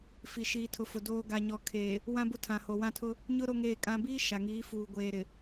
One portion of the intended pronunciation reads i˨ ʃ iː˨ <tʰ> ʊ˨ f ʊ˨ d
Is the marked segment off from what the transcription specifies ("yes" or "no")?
no